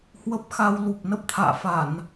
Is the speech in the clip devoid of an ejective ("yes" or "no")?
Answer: yes